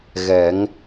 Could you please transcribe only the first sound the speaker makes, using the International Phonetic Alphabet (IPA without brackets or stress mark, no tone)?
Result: ɣ